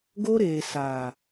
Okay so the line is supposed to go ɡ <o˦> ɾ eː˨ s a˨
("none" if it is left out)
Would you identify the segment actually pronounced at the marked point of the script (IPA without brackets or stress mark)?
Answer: o˦